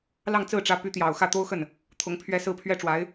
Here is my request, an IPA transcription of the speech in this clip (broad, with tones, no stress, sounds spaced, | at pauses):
l ɑ˥˧ ŋ t͡s ɹ̩˥˩ ʈ͡ʂ ä˧˥ p y˧˥ t̪ j ɑ˨˩ ʊ̯ x ä˥˩ t̪ o˥ ʊ̯ x ə˥˩ n | t̪ʰ ʊ˧˥ ŋ pʰ ɥ ɛ˥˧ s ɹ̩˥˩ pʰ ɥ ɛ˥ ʈ͡ʂ w a˧˥ ɪ̯